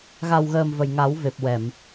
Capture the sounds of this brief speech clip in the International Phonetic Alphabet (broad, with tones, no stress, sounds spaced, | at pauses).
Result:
ɣ a˨˩ w ɣ əː˨˩ m v ə˨˩ j ŋ a˨˩˦ w v e˨˩ p̚ w ɛ˨˩˨ m